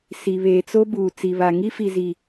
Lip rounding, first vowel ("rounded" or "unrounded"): unrounded